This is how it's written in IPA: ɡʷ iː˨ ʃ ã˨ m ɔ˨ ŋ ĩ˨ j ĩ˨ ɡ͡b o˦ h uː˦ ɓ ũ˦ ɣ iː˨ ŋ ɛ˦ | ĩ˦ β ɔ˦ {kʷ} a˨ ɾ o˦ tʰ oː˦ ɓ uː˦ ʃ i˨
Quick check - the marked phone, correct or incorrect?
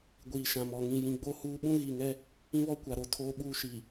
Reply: correct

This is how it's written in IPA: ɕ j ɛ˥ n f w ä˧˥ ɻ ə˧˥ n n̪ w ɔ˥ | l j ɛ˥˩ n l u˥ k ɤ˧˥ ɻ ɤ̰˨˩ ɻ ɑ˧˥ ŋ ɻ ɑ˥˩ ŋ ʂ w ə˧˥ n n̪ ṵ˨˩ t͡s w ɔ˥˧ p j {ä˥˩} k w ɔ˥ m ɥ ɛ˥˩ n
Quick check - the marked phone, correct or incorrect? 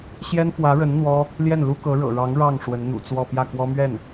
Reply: correct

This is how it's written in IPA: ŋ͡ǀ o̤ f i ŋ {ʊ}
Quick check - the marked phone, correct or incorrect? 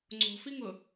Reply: correct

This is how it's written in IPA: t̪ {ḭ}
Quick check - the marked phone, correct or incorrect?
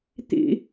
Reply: correct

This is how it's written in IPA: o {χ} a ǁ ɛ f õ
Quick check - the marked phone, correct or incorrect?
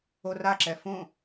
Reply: incorrect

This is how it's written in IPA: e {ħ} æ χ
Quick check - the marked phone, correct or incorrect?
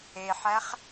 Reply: correct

